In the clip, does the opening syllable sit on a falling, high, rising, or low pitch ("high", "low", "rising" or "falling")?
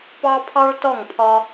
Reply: high